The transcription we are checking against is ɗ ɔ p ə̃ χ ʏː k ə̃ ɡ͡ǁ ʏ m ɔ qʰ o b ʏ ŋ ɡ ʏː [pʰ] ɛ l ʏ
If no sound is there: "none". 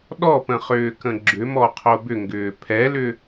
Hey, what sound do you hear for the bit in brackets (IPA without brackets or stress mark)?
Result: pʰ